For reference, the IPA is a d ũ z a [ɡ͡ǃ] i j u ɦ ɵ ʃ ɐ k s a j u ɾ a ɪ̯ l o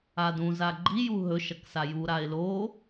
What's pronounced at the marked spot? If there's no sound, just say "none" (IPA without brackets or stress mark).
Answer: ɡ͡ǃ